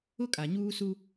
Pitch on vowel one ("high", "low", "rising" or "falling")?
high